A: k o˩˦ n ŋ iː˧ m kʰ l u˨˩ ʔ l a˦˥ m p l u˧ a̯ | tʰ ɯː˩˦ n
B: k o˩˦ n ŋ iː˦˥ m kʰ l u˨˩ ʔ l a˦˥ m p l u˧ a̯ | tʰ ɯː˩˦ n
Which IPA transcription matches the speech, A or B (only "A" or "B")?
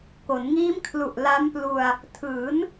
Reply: B